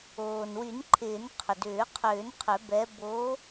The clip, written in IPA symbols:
oː˩nwy˨˩˦nǃʰɪː˨˩˦n qʰʏ˩dʏː˨˩˦qʰʏː˨˩˦n qʰʏ˨˩˦ bɛ˨˦ bo˨˦

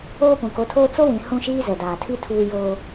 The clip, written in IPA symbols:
oː˦pũ˨ko˨˦tʰoː˦ t͡so˦wĩ˨ hũ˦ʃiː˦ zɛ˨daː˨tʰi˦ tʰuː˦joː˦

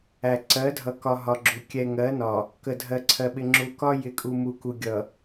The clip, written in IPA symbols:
æ˨ ǀɜ˨˦dʱʌ˨kɒ˨ ɦɒ˨ɡ͡ǁu˨ kʲɛ˨ŋɜ˨˦nɒ˨ | kə˨dʱɜ˨ ǀʰɜ˨ɓɪ˨ ŋ͡ǁu˨kɒ˦ jɪ˨˦kʼu˨mu˨ ku˨ɡʲʌ˨

